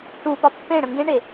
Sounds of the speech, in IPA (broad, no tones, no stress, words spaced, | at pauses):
ʈupɒ pːẽɽə̃ ŋɡẽɳe